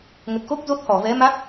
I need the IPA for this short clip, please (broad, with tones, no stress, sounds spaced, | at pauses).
ŋ ə˨˩ t̚ x o˦˥ k̚ z o˦˥ t̚ h ɔ˧˩ v ɛ˨˦ m a˦˥ k̚